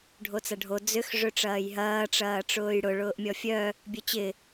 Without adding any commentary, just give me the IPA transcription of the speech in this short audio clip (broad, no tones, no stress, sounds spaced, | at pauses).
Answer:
ɖʱ o t͡s ɐ ɖʱ o d͡z ʏ x ʐ ø ʈ͡ʂ ɐː j ɦ ɐː ʈ͡ʂ ɐː ʈ͡ʂ ʊː j ɽ ʊ ɭ ʊː ʔ mʲ ɔ fʲ œ | bʲ œ t͡ɕ ɪ